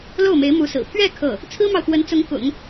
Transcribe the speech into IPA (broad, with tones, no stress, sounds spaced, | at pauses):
l o˥˩ ʊ̯ m e˧˥ ɪ̯ m u˧˥ s ɹ̩˨˩ pʰ ɥ ɛ˥˧ kʰ ɤ˥˩ | t͡sʰ ɹ̩˥ m ɑ˨ ʊ̯ x w ə˧˥ n t͡s ʊ˧˥ ŋ k ʊ̰˨˩˦ ŋ